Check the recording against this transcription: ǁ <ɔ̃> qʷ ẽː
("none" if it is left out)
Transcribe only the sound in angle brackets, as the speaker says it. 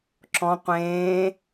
ɔ̃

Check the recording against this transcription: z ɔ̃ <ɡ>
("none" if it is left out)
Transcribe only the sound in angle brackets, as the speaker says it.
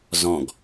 ɡ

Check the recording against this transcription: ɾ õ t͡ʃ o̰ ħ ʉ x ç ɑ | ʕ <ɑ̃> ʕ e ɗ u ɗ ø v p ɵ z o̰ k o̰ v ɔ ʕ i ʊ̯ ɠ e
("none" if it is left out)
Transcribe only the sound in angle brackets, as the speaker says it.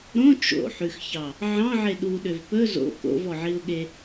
ɑ̃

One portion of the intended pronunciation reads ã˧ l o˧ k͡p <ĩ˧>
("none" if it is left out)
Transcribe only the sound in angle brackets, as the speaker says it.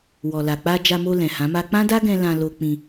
ĩ˧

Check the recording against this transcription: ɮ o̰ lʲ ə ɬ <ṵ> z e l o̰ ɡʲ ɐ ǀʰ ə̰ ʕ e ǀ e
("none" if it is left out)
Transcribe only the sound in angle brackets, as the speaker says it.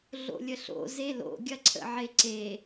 o̰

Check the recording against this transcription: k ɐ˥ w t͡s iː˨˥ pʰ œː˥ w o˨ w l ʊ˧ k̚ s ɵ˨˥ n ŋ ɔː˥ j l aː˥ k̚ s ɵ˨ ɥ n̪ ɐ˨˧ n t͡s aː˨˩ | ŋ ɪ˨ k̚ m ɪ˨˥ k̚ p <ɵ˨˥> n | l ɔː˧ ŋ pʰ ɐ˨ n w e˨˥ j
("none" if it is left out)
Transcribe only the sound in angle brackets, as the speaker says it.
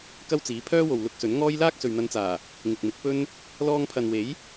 ɵ˥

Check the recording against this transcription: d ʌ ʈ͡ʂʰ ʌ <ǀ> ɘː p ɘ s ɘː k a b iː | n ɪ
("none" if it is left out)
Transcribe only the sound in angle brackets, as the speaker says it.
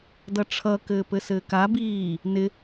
k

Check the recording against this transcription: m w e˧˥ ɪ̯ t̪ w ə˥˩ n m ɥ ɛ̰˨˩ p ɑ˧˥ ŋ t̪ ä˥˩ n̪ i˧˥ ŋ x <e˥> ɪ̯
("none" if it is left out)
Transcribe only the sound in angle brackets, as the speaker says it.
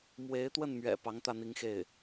e˥˩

